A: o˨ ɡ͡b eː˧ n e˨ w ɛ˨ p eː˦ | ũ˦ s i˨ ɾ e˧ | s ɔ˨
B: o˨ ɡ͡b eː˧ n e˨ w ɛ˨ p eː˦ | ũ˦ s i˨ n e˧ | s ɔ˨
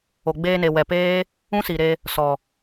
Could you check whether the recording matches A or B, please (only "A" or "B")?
A